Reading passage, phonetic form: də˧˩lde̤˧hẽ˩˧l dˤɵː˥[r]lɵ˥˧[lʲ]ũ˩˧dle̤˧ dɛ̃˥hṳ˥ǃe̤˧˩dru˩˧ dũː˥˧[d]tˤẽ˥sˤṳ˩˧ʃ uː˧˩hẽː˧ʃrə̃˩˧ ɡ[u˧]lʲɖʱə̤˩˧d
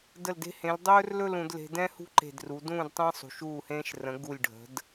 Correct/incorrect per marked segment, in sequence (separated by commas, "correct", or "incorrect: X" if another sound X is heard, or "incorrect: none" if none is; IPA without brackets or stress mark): correct, incorrect: l, correct, incorrect: u˧˩